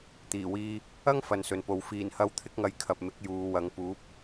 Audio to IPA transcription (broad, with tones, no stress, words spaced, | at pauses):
t̪iː˨˩wiː˧ | ɐ˥ŋ fɐ˨nsɵ˨npo˨˧w fiː˨˩nhɐ˧w t̪ʰɪ˥k̚ŋɐ˧jkʰɐ˨p̚mɪ˨˥k̚ juː˨wɐ˨˧ŋ puː˨˥p̚